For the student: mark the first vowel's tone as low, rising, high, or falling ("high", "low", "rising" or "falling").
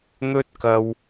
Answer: high